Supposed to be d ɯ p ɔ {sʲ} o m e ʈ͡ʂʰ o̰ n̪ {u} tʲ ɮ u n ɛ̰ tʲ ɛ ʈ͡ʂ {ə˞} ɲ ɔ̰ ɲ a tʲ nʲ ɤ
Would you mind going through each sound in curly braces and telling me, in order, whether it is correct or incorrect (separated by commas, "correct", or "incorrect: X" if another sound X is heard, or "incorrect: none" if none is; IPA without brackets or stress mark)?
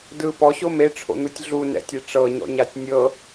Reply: incorrect: ɕ, incorrect: ɯ, incorrect: ɤ